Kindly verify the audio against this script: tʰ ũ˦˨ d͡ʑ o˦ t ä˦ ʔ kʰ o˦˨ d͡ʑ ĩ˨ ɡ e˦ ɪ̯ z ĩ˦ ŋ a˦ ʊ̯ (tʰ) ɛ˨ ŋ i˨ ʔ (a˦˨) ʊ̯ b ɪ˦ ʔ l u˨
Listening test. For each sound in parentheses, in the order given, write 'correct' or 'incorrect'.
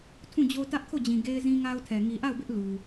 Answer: correct, correct

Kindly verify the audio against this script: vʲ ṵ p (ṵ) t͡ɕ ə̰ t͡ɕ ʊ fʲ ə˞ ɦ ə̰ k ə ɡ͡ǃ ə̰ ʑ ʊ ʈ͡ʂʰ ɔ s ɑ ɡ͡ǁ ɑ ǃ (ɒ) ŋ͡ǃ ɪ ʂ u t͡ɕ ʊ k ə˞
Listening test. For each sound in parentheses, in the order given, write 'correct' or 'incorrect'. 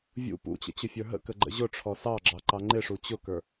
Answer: correct, incorrect

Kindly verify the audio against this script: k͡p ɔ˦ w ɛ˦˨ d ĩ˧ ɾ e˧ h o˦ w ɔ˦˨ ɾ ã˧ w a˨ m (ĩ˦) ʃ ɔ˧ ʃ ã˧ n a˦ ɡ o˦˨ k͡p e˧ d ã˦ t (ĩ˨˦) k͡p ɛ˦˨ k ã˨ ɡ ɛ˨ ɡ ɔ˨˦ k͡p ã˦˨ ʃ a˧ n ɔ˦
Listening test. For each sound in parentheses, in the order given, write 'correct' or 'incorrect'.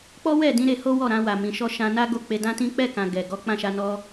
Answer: incorrect, incorrect

